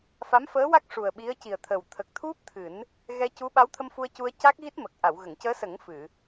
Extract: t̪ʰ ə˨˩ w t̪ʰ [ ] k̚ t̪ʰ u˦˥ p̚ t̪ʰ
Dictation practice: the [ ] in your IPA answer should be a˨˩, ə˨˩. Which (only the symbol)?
ə˨˩